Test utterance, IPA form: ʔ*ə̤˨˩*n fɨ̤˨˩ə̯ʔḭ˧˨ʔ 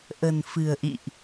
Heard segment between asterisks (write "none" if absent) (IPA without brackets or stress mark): ə̤˨˩